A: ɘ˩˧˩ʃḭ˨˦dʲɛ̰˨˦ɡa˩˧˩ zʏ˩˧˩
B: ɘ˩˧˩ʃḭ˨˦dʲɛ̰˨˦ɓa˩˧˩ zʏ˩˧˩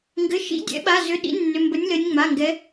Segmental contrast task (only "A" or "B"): B